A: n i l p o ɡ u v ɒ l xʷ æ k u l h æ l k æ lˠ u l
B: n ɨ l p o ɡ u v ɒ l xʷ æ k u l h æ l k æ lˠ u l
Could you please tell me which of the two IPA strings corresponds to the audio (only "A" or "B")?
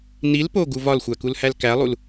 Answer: A